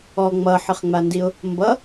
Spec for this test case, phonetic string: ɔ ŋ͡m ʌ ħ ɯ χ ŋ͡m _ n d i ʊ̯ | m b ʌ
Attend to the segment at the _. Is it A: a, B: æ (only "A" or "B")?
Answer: A